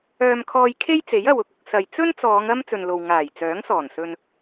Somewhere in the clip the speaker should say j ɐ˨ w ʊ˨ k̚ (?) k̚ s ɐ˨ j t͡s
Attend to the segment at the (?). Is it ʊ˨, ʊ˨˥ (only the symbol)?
ʊ˨